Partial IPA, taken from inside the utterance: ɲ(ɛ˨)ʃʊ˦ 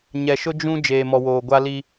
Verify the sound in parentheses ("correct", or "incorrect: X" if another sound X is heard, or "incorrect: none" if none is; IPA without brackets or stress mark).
correct